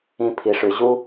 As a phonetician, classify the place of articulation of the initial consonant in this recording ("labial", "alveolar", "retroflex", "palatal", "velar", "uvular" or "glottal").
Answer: labial